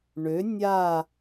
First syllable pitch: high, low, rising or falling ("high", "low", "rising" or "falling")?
rising